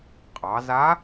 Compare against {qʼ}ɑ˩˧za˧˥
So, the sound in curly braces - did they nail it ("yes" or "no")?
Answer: yes